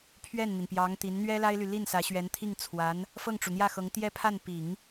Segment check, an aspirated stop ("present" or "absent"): present